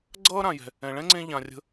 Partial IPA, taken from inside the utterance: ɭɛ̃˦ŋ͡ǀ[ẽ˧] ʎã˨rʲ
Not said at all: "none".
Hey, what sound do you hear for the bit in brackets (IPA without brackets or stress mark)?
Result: ẽ˧